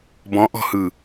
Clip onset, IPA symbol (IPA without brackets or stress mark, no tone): b